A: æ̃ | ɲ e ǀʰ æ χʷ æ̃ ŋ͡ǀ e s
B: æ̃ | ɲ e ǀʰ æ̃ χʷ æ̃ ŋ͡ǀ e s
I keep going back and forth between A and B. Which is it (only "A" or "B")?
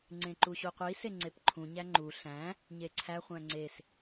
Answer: A